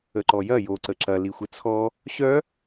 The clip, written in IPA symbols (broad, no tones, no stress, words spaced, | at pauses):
əǃɔjɐ jo ǀəǁɐ lixʷɘt͡sʰɔ | ɕœ